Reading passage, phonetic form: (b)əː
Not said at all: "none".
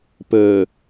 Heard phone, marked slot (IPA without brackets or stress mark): p